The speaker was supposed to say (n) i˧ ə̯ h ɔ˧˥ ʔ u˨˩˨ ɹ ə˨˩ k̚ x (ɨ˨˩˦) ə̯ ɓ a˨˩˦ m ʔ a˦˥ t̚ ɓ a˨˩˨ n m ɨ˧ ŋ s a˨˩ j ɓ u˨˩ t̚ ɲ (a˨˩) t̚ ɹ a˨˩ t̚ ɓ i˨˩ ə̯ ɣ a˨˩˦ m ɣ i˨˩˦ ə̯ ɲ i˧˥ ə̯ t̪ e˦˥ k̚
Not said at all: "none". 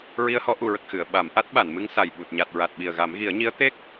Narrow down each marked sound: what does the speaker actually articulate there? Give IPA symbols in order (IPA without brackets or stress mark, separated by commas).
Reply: ɹ, ɨ˨˩˨, a˨˩